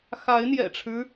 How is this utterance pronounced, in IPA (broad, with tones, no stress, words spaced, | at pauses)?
xa˨˦ɪ̯n̪jɛ̰˨˩ʈ͡ʂʰɻ̩˦